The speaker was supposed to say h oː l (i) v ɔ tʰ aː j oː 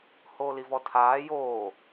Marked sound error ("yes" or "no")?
no